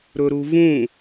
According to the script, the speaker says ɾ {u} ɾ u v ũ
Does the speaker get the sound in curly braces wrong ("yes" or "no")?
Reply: yes